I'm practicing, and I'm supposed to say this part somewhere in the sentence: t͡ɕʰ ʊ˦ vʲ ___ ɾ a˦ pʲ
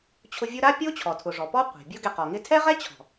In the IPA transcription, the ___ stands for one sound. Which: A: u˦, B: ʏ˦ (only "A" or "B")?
A